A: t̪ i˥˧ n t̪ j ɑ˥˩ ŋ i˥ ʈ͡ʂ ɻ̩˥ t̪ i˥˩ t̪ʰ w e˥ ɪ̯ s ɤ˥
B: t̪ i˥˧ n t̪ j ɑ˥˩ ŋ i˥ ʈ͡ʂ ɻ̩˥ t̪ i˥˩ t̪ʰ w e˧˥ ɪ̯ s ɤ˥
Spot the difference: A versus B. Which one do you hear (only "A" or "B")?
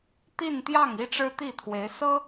B